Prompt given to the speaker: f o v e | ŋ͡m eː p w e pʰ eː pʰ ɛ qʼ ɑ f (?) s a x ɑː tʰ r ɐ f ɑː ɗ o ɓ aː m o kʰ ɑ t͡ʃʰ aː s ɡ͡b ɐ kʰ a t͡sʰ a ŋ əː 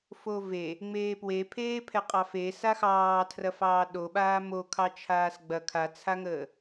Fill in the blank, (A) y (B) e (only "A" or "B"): B